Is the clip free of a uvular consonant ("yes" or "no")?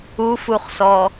no